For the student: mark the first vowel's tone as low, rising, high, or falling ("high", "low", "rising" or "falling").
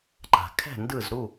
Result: low